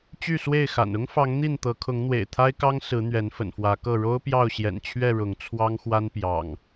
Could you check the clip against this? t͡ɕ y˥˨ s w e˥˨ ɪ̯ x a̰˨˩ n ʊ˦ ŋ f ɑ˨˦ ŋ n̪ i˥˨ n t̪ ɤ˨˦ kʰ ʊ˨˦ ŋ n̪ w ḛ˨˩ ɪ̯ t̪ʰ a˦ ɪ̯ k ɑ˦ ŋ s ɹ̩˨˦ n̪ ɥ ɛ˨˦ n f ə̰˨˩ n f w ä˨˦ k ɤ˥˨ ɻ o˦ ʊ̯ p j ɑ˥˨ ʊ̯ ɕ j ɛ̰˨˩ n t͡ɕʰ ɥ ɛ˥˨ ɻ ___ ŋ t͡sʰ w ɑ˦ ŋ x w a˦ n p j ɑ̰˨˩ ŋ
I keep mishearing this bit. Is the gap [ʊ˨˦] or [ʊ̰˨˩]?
ʊ˨˦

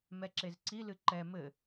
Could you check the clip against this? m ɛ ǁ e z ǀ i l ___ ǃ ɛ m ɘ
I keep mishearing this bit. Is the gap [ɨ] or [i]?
ɨ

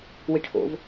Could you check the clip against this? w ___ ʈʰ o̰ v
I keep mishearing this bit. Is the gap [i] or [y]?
i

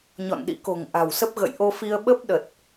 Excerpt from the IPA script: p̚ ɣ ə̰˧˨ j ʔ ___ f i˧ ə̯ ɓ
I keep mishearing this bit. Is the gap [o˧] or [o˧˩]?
o˧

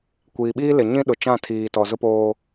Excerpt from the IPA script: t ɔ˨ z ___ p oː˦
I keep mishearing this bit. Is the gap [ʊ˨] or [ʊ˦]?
ʊ˦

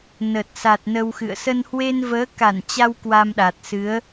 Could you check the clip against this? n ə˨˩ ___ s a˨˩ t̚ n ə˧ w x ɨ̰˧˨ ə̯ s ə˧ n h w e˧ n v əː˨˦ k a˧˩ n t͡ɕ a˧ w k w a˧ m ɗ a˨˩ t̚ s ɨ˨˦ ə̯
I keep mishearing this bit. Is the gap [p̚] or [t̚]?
t̚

